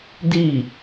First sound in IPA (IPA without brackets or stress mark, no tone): d